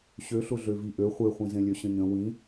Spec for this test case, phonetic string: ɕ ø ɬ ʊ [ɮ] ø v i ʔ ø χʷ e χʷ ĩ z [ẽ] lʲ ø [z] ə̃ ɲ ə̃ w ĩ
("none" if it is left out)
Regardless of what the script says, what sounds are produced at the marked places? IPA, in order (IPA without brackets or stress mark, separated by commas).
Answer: ɮ, ẽ, ɕ